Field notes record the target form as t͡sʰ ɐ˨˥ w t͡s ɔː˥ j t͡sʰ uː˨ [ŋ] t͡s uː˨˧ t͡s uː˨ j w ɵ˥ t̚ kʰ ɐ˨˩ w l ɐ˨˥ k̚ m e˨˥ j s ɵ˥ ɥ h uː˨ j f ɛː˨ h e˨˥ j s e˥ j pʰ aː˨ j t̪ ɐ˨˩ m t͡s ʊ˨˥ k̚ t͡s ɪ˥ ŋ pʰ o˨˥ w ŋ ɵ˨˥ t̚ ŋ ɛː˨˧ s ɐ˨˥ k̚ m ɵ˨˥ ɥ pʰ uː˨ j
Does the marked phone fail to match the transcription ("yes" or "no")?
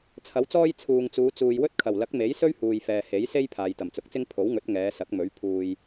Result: no